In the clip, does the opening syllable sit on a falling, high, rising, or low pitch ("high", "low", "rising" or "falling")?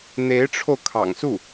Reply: rising